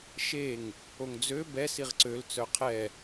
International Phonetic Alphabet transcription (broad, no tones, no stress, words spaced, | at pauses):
ʃeŋ | oŋd͡zø bɛ siʁǀøl t͡sœqʰɛ